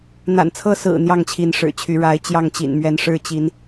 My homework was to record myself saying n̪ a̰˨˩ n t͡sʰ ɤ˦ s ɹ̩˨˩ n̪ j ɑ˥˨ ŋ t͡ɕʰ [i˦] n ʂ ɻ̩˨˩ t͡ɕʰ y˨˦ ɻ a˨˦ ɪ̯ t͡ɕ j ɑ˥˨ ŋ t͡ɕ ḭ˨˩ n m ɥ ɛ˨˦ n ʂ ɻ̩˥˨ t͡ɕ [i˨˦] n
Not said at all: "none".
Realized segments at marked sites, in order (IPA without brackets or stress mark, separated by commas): i˨˦, i˨˦